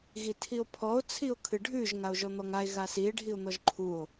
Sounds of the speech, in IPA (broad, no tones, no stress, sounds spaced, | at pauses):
ɣ i tʰ i o̯ pʰ ɔ o̯ t͡sʰ i o̯ kʰ ɨ ɖʱ ʉ ʒ ŋ a o̯ ʒ ɔ n̪ ɔ ŋ a e̯ ɣ a s i e̯ ɖʱ i o̯ n̪ ɔ ʒ ǃʰ u o̯